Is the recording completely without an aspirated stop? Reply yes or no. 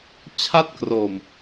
no